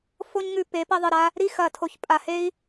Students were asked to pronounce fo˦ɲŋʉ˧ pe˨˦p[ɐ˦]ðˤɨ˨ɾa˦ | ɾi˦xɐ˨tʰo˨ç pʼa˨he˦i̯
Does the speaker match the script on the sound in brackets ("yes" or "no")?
yes